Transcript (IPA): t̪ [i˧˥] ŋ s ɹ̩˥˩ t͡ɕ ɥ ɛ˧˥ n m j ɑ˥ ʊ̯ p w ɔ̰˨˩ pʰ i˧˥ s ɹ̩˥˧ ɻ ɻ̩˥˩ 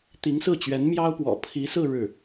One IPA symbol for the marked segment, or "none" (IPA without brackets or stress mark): i˧˥